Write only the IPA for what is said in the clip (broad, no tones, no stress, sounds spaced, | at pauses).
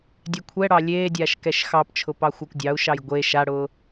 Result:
dʲ ɛ kʷʰ ɛ ɽ ɑ lʲ eː dʲ aː ʃ k ɛ ʃ x ɑ p t͡ʃʰ ʊ p ɑ xʷ ɑ kʷ dʲ ɑ u̯ ʃ ɑ j ɡʷ e ʃ a ɽ ʊː